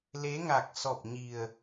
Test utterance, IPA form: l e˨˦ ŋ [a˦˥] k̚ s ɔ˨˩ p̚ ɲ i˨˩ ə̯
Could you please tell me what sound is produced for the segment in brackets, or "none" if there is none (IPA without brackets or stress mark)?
a˨˩